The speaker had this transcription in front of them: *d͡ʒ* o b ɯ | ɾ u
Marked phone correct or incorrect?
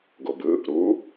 incorrect